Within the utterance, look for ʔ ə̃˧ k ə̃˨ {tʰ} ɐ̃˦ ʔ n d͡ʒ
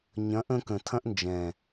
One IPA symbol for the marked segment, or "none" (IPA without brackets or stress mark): tʰ